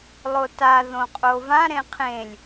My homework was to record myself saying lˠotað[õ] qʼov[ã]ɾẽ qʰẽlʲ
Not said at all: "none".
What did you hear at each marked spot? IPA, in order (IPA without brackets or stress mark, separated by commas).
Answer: õ, ã